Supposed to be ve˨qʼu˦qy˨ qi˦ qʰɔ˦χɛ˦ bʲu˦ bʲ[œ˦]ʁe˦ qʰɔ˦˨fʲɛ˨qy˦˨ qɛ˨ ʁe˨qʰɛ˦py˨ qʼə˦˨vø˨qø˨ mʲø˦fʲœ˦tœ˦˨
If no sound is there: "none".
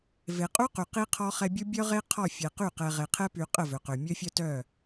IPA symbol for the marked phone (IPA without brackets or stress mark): œ˦